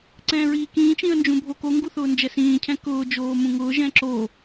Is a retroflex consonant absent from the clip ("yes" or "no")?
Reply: yes